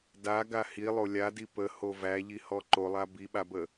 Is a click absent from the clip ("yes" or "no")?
no